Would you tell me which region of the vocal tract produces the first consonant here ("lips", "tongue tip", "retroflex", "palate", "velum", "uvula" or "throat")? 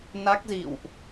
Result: tongue tip